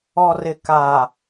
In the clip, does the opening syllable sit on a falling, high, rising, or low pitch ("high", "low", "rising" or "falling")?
low